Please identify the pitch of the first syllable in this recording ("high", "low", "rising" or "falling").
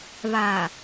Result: low